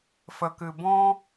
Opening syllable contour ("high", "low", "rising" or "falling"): low